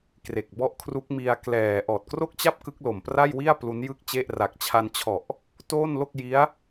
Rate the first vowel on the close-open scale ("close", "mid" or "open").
mid